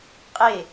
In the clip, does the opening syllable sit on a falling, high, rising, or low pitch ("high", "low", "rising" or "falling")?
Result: falling